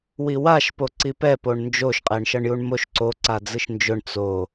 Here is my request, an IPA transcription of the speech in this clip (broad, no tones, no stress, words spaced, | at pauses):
wiwaʃ poǀipɛ poɳnd͡ʒoʃ qʼɛɳʃʌɳjuɳmoʃ ǀo ǀad͡zɯʃnd͡ʒʊɳ t͡so